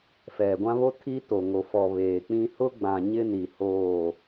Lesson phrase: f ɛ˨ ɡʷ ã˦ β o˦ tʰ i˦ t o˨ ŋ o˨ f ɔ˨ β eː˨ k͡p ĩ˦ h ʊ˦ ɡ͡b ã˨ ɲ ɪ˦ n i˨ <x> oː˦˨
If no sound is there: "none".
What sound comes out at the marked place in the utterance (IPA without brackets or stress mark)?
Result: h